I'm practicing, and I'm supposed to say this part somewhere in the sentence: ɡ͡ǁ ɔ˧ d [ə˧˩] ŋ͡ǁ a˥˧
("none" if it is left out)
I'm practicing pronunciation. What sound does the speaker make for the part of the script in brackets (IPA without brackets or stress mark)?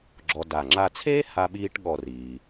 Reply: a˧˩